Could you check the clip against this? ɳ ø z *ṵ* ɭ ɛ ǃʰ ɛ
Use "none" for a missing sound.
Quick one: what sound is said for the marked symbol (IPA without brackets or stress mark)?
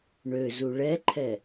u